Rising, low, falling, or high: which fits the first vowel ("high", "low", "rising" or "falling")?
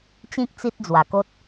high